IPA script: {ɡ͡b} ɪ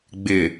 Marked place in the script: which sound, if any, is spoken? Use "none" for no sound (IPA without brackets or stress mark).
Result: ɡ͡b